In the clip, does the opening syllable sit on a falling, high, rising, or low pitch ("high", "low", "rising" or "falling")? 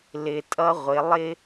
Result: low